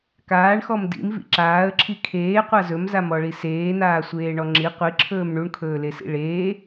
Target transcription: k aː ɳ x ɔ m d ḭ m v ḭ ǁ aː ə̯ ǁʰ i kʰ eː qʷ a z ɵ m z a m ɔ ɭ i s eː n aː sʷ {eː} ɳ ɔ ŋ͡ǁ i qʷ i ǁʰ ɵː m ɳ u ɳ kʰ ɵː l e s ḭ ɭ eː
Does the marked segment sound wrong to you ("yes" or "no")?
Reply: no